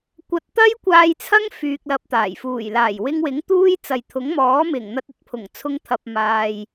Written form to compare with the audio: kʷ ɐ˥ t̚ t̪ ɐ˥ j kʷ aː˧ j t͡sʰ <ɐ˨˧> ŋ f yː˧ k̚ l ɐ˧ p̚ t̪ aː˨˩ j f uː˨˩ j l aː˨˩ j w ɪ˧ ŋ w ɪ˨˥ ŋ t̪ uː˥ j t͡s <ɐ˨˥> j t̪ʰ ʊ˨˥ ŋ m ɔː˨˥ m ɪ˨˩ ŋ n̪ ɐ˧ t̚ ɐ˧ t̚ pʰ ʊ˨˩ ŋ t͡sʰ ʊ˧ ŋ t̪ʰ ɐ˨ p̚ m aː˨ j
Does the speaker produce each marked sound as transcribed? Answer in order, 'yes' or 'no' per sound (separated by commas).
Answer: no, no